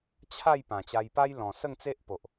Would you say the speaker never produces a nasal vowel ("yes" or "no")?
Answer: no